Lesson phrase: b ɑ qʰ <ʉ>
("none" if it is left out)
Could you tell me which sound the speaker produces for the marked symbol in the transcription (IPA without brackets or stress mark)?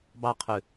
ʉ